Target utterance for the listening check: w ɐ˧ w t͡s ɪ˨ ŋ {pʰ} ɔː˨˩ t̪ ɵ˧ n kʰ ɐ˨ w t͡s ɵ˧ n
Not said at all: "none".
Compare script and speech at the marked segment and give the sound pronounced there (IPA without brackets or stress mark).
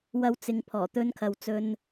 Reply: pʰ